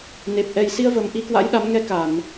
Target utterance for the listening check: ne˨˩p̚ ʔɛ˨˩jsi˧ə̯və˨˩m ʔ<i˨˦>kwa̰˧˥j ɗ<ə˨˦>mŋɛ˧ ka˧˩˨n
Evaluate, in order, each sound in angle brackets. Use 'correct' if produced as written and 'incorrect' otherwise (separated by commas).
incorrect, incorrect